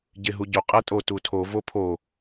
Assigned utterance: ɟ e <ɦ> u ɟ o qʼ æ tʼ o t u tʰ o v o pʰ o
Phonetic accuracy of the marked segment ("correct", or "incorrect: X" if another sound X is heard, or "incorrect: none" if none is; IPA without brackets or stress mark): correct